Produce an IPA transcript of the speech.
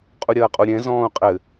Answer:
qʼuɾʲɐːqʼuɾʲɛ̃ zɔ̃ːu̯qʼɘ

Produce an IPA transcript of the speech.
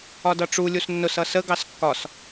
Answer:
ɒdʌʈ͡ʂu lʲusnːʊs ʌsə ɡɑskːɒs

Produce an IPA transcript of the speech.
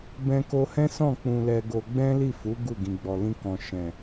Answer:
bɛ̃˧ko˧hɛ̃˦sɔ̃˦˨ k͡pũ˧lɛ˧ɡo˧ ɡ͡bɛ̃˦li˦˨fu˨˦ ɡu˦˨ ɡĩ˨ɡ͡bɔ˨lĩ˧kɔ̃˨ ʃɛ̃˨

